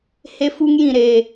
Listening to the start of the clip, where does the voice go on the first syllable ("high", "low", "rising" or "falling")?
high